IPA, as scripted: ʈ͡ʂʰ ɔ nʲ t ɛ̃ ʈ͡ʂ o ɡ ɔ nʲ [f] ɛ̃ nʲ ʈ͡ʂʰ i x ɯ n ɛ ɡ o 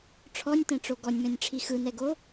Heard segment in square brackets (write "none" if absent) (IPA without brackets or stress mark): m